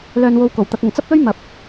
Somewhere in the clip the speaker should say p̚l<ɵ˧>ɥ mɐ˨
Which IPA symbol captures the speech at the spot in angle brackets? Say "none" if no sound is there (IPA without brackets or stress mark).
ɵ˥